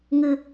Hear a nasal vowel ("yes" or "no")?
no